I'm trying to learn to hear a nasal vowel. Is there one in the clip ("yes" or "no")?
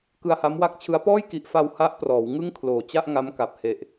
no